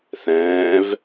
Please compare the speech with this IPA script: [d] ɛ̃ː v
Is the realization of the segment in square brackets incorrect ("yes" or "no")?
yes